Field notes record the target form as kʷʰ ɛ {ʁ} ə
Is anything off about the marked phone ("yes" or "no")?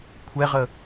no